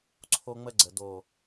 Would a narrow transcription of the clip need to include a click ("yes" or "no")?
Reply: yes